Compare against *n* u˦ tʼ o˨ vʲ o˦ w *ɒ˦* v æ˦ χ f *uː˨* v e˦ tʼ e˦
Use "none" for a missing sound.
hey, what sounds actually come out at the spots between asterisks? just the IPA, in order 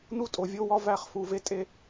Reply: n, ɒ˦, u˨

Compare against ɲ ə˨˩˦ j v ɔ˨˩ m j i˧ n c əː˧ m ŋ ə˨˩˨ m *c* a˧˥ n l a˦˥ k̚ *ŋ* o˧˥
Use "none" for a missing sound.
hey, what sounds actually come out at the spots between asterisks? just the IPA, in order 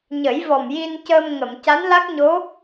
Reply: c, ɲ

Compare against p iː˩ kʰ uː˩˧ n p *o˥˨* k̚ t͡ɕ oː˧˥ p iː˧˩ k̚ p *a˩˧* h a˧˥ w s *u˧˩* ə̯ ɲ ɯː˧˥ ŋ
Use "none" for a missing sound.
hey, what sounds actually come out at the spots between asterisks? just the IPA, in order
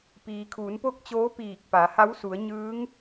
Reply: o˥˨, a˩˧, u˩˧

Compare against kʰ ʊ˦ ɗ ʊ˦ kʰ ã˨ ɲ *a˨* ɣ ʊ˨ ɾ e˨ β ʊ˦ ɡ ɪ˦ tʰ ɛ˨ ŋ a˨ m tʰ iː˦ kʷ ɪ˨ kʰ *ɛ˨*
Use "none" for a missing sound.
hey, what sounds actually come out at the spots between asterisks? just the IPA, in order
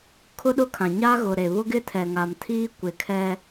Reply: a˦, ɛ˦

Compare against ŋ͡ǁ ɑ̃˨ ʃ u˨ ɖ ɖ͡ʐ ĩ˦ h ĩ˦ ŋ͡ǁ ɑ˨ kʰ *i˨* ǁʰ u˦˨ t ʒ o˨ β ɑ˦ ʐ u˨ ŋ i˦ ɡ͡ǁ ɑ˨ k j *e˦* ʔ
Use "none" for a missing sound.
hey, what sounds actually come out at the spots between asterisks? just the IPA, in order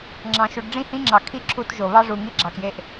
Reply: i˦˨, e˦

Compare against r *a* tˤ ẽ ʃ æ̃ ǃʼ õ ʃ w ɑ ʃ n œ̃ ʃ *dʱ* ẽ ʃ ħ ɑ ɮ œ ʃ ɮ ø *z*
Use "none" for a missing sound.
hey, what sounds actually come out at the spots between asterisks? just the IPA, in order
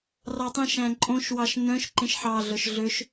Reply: ɑ, ǃ, ʃ

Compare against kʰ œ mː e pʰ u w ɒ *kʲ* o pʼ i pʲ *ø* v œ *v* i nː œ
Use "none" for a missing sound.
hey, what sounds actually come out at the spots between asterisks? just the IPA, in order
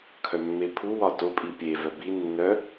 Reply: t, e, b

